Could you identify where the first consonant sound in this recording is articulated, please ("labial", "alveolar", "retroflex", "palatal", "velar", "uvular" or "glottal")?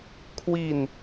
velar